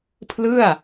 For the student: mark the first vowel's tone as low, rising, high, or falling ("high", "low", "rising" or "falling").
falling